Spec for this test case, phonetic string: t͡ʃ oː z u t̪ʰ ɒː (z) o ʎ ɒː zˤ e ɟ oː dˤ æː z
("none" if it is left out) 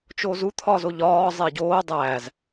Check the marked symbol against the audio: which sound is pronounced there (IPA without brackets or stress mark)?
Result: z